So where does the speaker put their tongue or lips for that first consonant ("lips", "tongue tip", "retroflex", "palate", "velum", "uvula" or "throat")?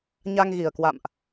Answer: palate